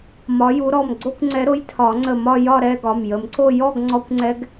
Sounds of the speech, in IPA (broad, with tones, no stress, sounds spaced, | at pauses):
m ɒ˨˦ j u˨˦ ɾ ɔ˩˧˩ m ɡ͡ǀ o˥˧ kʷ ŋ͡ǀ ɛ˨˦ ɾ o˨˦ j tʰ ɒ˨˩˦ ŋ͡ǀ ə˧˩ m ɒ˥˧ j ɒ˥˧ ɾ ɛ˥˧ ɡ ɒ˩˧˩ m j ə˨˩˦ m ǀ o˥˧ j ɔ˥˧ ɡ ŋ͡ǀ ɔ˦˥ kʷ ŋ͡ǀ ɛ˦˥ ɡ